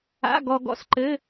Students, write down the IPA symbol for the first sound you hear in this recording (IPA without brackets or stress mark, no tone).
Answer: a̰